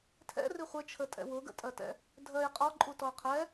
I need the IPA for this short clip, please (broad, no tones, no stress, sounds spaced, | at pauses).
tʰ ɛ̰ r i χʷ ɘ t͡ʃʰ ə tʼ ɛ̰ w ʊ ɡ ə̰ tʼ ɜ t ɛ̰ | dʱ ɜ j qʼ ɔ ǃʼ u t ɔ ə̯ qʰ ɛ